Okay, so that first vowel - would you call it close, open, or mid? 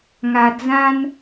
open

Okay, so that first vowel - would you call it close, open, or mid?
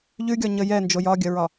close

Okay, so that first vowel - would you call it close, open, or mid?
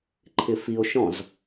close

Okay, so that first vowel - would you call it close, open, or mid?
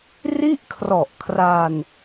close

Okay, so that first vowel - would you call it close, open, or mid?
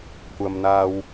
open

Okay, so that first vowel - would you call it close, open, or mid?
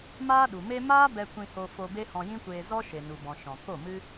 open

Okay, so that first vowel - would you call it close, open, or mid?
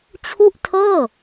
close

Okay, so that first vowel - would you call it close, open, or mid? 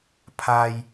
open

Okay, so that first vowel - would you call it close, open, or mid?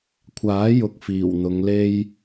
open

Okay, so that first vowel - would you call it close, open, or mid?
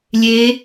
mid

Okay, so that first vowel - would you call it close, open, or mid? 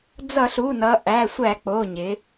mid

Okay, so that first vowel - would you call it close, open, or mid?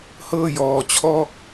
mid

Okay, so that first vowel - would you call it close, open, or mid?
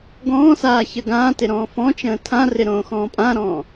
mid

